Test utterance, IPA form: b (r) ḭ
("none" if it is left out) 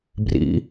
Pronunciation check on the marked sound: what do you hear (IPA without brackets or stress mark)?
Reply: r